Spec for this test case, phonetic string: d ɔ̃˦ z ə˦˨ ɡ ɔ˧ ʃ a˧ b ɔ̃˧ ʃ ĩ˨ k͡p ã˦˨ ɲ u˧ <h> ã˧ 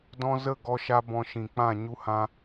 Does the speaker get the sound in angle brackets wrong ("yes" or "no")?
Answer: no